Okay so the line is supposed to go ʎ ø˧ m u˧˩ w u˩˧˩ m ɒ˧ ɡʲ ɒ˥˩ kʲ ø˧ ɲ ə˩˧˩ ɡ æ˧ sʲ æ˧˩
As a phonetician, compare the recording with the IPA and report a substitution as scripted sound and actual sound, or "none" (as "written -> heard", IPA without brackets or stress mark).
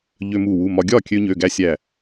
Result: ə˩˧˩ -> ø˩˧˩